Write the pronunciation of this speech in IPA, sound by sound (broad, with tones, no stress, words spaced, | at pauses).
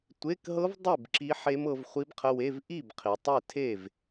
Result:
tʷe˧˥˧kɦɤ˦˥vdˤe˥˨b ǁi˦˥ħe˦˥mɤ˨˦v χʷi˦˥bqʰə˧˥˧we˧˥˧v ʔi˥˨bqʰi˨tˤe˥˨ tʰe˥˨v